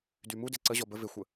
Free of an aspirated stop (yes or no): yes